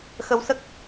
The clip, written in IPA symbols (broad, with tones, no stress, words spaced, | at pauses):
xə˧wsə˦˥k̚